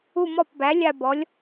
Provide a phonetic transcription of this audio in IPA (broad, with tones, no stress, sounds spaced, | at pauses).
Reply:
u˦˨ m ɔ˦˨ p b æ˩˥ lʲ a˦˨ b ɔ˩˥ lʲ